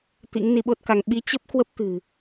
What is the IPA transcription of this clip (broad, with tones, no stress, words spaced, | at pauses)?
t̪ḭ˧˥ŋni˧ɓo˦˥t̚ka˧ŋ ɓi˨˦ t͡ɕə˦˥p̚kwə˦˥p̚ t̪ɨ̤˨˩